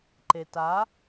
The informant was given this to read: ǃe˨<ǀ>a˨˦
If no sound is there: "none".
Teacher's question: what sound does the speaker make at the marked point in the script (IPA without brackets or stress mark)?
t